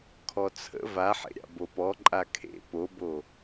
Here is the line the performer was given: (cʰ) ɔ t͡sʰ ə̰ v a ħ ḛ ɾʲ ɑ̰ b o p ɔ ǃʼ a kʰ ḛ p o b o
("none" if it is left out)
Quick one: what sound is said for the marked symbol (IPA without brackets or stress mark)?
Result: kʰ